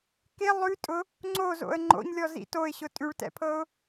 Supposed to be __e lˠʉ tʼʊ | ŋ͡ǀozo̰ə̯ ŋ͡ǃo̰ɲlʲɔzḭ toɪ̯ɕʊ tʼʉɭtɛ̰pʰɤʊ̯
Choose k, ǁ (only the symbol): k